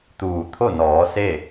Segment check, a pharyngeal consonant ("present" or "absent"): absent